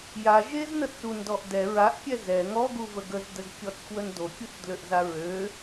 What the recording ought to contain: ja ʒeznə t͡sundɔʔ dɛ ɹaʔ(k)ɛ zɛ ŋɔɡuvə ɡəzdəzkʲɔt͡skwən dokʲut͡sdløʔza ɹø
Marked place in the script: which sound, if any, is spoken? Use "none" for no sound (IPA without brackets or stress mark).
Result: kʲ